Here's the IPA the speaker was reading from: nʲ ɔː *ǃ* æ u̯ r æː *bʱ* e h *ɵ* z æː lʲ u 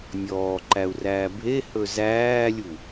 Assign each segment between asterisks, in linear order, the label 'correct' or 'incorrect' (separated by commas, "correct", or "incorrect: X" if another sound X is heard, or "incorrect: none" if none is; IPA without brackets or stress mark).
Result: correct, correct, correct